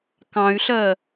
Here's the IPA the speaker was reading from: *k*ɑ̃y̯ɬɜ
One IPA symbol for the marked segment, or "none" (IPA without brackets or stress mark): k